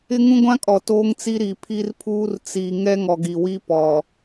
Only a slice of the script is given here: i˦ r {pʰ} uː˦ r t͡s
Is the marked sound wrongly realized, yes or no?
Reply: no